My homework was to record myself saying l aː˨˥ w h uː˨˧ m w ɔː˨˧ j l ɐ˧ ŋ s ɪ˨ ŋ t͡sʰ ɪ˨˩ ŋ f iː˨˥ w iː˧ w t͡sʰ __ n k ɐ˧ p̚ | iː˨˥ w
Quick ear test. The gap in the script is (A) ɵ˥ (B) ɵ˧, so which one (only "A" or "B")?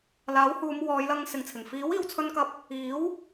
B